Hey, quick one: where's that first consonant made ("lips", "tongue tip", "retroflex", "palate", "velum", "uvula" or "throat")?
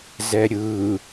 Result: tongue tip